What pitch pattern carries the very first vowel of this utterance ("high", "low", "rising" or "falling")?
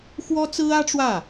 high